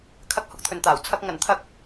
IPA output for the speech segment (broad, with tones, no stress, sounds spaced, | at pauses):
kʰ ɐ˧ k̚ h ʊ˨˥ k̚ t̪ʰ ɵ˨ n t̪ aː˨˩ w t͡sʰ ɐ˨ k̚ ŋ ɐ˨˩ n t̪ʰ ɐ˨˥ k̚